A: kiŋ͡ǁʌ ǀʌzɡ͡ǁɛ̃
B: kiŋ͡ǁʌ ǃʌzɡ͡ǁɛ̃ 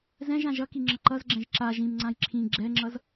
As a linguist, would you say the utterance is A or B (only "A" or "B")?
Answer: B